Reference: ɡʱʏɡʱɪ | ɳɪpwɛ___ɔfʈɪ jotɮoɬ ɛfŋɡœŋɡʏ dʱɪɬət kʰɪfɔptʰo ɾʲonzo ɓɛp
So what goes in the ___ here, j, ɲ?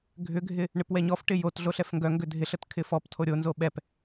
ɲ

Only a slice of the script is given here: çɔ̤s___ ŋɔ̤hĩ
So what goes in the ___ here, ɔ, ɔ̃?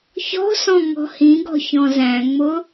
ɔ̃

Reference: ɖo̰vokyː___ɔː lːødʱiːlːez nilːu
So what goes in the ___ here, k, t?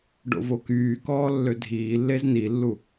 k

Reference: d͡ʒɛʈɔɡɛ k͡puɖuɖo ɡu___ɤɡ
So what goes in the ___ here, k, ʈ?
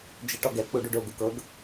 k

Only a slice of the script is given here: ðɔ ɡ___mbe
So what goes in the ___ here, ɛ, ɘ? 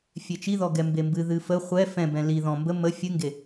ɛ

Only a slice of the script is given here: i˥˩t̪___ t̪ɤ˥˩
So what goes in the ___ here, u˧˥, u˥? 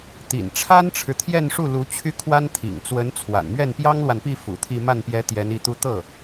u˥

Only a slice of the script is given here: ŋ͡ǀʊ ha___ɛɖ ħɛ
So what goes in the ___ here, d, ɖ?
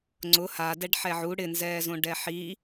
d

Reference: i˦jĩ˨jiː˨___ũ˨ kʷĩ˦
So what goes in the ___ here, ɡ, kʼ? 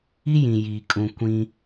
kʼ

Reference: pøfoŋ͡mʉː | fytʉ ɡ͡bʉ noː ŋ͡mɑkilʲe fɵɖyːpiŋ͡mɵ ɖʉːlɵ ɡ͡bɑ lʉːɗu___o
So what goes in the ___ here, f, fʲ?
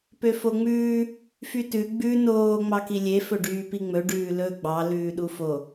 f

